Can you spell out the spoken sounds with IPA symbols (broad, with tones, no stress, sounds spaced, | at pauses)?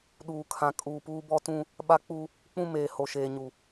ɗ uː˨ kʰ ã˨ kʼ uː˨ p uː˦ b ɔ˦ t ũ˦ | ɓ a˦ k͡p u˦ | k͡p ũ˦ m eː˨ h o˨ ʃ eː˨ ɲ u˨